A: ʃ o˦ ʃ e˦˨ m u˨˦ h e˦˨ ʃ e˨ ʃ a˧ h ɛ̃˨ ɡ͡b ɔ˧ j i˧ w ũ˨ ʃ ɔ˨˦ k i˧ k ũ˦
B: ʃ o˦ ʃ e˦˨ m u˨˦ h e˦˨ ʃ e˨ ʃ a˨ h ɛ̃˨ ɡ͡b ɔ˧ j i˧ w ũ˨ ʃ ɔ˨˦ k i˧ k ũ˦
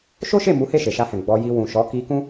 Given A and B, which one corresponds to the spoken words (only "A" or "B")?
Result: A